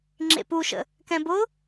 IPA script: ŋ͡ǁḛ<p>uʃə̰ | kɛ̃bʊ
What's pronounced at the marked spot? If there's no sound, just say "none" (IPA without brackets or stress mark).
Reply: p